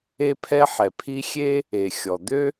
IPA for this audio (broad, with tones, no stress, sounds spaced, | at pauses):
e˥ pʰ ɛ˥ ħ ɛ˩ pʰ i˥ xʲ e˥ | e˩ xʲ ɔ˩ d̪ ø˥